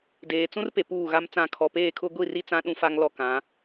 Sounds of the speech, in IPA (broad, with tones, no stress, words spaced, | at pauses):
deː˨t͡sũ˦rpe˨ puː˦˨ɣa˦mt͡sã˦˨ kʰɔ˨peː˦˨kʰʊ˦ ɡʷi˦˨ri˦ t͡sã˦ɗũ˦fa˦ŋ lɔ˦kã˨˦